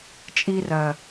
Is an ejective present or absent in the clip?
present